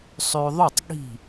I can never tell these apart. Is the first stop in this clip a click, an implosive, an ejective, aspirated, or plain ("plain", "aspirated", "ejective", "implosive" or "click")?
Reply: plain